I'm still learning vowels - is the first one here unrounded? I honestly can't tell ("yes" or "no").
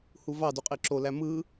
no